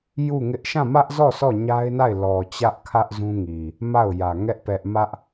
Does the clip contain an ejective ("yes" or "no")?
no